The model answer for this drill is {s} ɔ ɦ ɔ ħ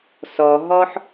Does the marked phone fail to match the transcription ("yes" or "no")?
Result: no